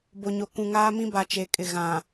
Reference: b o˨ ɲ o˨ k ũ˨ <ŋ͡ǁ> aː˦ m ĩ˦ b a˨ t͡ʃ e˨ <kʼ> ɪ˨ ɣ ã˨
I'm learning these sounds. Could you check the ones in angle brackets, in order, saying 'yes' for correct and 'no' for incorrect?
no, yes

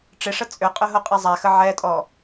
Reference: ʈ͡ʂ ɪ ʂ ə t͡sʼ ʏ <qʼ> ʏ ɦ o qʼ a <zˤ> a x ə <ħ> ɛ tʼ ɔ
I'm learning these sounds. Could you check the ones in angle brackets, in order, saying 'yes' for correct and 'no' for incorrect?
yes, yes, no

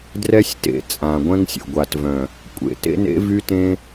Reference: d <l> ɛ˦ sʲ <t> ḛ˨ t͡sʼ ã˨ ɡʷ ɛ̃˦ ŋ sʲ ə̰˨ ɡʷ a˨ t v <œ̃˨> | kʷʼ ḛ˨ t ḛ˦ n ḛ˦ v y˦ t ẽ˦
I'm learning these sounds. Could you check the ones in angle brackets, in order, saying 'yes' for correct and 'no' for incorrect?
no, yes, yes

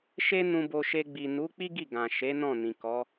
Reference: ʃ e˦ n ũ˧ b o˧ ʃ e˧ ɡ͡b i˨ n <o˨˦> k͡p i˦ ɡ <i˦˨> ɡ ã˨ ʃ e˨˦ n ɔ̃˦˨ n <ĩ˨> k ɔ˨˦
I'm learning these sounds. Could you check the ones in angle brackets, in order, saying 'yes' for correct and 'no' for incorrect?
no, yes, yes

